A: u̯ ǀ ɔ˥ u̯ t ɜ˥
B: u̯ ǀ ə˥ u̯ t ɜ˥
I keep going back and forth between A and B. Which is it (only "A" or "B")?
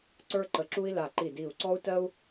A